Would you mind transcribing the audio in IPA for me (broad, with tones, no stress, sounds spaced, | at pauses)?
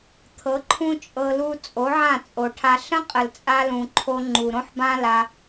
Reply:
t̪ʰ ɤ˨˦ ǃʰ ũ˦ t͡ʃʼ ɤ˧ l u˧ t͡sʼ o˨˦ ʕ ã˦˨ t͡sʼ o˨ ʈʰ a˧ ɬ ə̃˦ qʼ ə˨ l t͡sʼ a˧ l ũ˨ ǃʰ o˧ ŋ͡ǃ u˨ ɾ õ˦ ħ b ã˦ l a˧